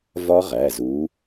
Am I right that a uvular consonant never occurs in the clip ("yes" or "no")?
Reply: no